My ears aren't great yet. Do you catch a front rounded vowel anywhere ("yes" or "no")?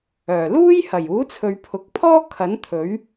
yes